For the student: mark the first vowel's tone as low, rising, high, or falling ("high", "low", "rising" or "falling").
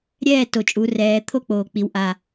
falling